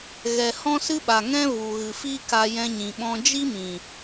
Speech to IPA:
ɣɛ˨ hɔ̃˦sɨ˦ɓa˨ ŋɛ̃˦ vu˨ɣɨ˨ fi˦ ka˧jɛ̃˧ɲĩ˨ ɓɔ̃˧d͡ʒi˦mĩ˨

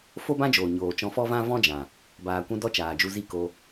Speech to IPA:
fo˦bã˦d͡ʒoː˨ ɲoː˨t͡ʃɔ̃˧fɔ˦vã˦ vɔ̃˦d͡ʒã˨ | baː˨kʷũ˧ dɔ˦t͡ʃaː˨d͡ʒu˧zi˦ ko˧

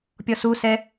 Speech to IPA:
pʲɔsusɛ

